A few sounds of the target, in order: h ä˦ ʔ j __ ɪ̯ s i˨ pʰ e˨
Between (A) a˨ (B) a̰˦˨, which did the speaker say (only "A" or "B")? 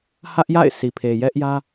B